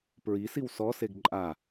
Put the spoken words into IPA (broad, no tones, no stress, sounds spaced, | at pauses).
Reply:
p ɹ i s i w s ɔ s e ɡ ǃʼ a